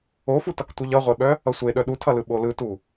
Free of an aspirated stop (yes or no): no